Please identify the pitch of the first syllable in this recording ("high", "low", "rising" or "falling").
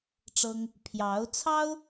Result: high